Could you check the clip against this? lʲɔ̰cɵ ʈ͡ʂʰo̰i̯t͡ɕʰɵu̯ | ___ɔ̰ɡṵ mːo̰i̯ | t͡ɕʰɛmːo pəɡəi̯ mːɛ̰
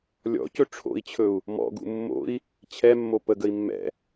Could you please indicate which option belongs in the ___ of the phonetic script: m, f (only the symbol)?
m